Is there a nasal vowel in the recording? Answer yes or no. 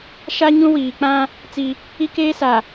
yes